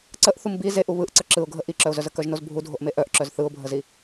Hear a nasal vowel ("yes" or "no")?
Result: no